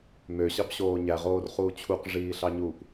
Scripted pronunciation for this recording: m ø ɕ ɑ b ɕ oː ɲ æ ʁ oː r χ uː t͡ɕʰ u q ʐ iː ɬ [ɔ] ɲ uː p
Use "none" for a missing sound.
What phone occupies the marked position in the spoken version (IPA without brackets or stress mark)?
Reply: ɑ